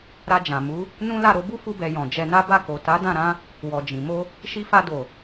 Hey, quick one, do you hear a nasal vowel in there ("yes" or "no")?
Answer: yes